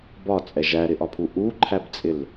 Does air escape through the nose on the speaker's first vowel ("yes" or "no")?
no